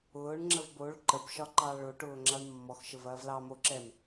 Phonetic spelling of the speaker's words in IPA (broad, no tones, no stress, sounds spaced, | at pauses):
ʊː ɳ ŋ͡ǁ ə v b o ɭ ǃ ə b ʃ ɒ ǃ ɑ ɭ o ʈ ʊː ŋ͡ǁ ɑ ɳ mː ɔ x ʃ ə v ɐː v l ɑ m o ǁ ɛ m